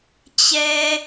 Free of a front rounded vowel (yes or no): yes